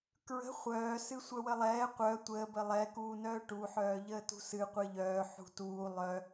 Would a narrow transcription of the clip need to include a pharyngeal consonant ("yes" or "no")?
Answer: yes